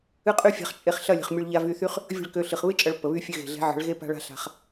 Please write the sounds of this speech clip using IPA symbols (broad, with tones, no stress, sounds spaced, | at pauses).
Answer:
ɨ˦ qʼ y˦ fʲ a̤˧ χ t͡ʃʼ e˧ χ ɬ ɐ˦˨ lʲ ə̤˨ χ mʲ ø˧ ɭ ʎ a˧ v y˧ θ y˦ χ | vʲ ə̤˦˨ ɭ k ø˧ ɬ ɨ˨ χ β ɨ˦ t͡ʃʼ ɐ˨˦ ɭ pː ə˨ β y˦ fʲ ø˧ ɣ e̤˨ ɮ e̤˨˦ ʕ ə̤˨˦ ɭ ɣ e˦ p a̤˦ ɭ a̤˦ ɬ a̤˧ χ